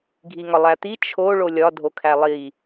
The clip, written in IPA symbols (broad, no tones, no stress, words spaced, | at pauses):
ɡʱiŋɒlˠæt̪i t͡ʃʰo ɭolʲɒ dʱokʰælˠi